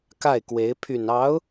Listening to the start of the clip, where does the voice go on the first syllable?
falling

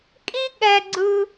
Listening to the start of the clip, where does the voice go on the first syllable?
high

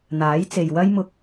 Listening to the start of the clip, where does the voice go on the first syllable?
rising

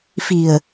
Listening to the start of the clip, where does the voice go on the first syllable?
low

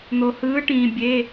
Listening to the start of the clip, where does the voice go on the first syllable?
low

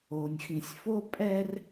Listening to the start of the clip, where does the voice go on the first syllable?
low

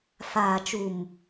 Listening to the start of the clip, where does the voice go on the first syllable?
low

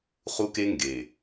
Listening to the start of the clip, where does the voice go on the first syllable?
high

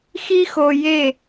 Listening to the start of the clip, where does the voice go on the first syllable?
high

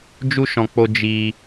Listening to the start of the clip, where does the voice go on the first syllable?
high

